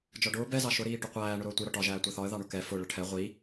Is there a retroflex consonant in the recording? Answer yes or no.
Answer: yes